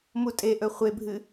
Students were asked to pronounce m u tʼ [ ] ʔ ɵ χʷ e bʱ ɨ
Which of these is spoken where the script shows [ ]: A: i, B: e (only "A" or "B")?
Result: B